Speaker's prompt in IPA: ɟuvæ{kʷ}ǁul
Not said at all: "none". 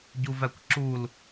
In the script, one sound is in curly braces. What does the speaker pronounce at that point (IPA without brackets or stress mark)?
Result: kʷ